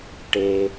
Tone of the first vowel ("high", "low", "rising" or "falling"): low